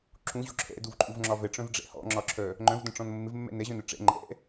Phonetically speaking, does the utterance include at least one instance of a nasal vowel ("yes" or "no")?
yes